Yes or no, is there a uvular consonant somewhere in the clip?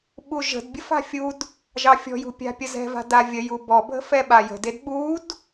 no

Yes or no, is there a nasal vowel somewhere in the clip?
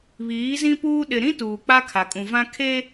yes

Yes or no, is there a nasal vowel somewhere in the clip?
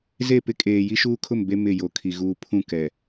yes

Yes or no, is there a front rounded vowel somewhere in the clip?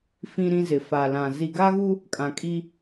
no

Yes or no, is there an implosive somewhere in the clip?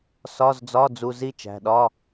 yes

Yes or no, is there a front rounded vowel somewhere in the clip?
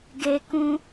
no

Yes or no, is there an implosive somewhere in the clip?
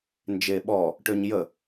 yes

